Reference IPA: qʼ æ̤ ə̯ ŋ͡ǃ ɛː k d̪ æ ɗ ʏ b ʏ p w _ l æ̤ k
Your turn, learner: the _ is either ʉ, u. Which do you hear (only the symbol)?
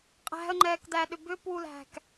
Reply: u